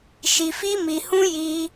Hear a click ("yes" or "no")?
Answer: no